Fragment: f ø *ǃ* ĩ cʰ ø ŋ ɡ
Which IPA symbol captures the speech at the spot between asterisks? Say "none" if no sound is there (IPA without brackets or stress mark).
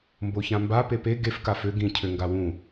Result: ɡ